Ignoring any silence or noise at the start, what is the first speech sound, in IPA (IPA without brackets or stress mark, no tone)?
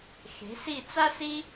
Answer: x